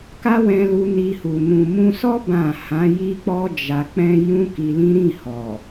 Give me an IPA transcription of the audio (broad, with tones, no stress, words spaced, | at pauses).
ka˦wɛ̃˧lu˧ ni˧hu˨ nũ˨mũ˧sɔ˦ bã˦˨ hã˨˦ji˦k͡pɔ˦ d͡ʒa˧ k͡pɛ̃˦ jũ˦ki˧lĩ˦ ɾĩ˦˨hɔ˨